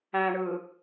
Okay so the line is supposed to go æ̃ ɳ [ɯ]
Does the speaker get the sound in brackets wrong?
no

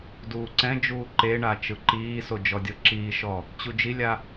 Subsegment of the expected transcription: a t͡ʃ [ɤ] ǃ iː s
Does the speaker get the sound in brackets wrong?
yes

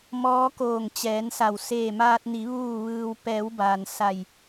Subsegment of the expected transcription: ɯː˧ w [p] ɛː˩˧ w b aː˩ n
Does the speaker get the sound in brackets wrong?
no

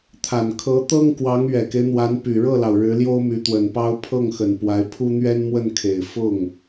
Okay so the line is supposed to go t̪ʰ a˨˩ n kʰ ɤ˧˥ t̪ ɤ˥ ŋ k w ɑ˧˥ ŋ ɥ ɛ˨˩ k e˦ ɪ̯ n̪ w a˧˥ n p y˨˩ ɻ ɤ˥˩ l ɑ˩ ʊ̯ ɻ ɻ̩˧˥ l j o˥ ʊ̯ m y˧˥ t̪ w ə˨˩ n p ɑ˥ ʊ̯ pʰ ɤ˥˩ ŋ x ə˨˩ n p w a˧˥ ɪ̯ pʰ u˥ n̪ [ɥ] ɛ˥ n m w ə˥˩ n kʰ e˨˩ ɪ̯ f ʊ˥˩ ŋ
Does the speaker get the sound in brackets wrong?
no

